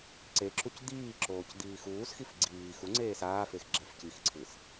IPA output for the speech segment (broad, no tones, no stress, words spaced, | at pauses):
ǀeǁuc d̪iːǁoːc d̪iːxuːsxif ɡ͡ǀiː xuŋ͡ǀeː saːfex ɡ͡ǁɛfcixǀʰɯs